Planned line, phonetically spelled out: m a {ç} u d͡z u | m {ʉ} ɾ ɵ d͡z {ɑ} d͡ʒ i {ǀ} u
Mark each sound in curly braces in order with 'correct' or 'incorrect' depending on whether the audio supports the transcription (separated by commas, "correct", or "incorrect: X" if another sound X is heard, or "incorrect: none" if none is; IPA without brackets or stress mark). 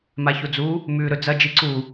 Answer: correct, correct, incorrect: ɐ, correct